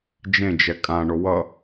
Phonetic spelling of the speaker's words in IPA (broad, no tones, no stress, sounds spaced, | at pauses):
d͡ʒ ẽ d͡ʒ ɛ kʼ ã ɳ o w ʌ